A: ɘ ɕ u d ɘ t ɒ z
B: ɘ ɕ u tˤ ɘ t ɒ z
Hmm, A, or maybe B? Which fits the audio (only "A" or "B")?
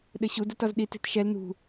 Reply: A